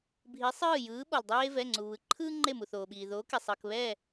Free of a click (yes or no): no